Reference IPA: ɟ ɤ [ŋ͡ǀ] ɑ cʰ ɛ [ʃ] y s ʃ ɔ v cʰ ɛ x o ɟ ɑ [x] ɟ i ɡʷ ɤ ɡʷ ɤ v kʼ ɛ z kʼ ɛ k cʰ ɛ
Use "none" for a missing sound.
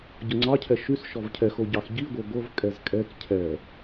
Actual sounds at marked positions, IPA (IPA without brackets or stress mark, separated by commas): ŋ͡ǀ, ʃ, x